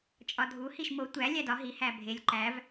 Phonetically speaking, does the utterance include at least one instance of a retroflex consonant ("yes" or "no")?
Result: no